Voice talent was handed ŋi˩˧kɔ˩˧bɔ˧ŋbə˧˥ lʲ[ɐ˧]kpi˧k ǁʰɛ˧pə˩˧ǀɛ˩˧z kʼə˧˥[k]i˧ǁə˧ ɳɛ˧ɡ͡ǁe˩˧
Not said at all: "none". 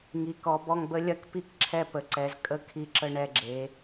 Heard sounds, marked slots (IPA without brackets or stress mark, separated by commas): ɐ˧, kʰ